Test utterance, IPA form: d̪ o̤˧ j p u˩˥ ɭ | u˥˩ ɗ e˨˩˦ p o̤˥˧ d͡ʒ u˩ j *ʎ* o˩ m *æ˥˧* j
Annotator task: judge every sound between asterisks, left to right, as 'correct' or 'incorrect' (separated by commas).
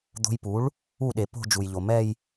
correct, incorrect